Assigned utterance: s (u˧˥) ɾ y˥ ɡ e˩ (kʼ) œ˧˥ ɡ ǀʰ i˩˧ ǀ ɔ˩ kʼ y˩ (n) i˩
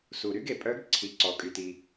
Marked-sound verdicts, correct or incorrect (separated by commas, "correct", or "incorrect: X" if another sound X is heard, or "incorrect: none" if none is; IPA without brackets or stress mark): incorrect: u˩, incorrect: pʼ, incorrect: t